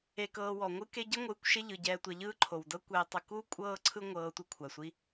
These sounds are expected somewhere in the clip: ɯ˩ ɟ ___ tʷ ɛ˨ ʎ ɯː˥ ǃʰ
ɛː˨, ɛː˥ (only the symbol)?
ɛː˨